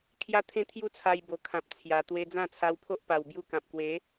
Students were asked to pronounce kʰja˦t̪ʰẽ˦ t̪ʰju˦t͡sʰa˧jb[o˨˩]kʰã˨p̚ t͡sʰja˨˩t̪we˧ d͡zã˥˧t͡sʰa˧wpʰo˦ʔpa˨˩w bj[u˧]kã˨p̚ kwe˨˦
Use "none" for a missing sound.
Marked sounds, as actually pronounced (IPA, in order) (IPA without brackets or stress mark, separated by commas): o˨˩, u˦